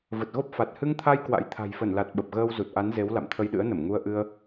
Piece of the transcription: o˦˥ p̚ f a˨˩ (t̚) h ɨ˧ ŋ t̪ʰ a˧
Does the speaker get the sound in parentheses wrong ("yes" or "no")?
no